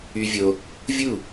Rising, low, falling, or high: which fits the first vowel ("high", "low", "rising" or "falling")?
high